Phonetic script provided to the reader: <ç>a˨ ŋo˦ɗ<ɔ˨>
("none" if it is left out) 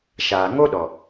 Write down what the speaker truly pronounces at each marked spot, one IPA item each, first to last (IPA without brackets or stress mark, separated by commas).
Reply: ʃ, ɔ˨